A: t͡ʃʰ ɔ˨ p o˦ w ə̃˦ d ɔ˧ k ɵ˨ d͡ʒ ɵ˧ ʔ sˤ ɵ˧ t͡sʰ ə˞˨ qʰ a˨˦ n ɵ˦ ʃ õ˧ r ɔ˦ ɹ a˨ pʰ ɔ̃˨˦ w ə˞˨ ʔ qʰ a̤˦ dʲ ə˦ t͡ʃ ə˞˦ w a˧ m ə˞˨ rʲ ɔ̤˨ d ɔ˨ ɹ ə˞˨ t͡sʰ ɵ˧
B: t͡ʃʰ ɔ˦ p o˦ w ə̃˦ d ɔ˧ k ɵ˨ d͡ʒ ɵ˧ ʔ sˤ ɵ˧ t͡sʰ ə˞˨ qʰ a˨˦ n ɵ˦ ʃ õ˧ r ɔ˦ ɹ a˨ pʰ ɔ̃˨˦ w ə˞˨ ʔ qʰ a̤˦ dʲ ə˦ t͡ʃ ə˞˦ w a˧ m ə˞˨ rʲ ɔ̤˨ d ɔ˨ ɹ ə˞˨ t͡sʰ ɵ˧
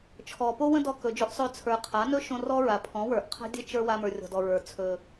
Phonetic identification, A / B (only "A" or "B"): A